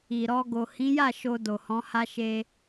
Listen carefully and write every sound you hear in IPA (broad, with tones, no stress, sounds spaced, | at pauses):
i˨ ɾ ɔ˧ ɡ o˨ h ĩ˨˦ j a˦˨ ʃ o˧ d o˨ h ɔ̃˨˦ h a˧ ʃ e˧